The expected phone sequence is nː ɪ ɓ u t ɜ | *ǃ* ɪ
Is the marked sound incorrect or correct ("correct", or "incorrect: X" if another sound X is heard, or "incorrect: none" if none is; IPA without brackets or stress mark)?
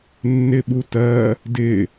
incorrect: d